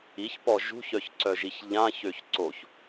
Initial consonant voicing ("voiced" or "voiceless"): voiceless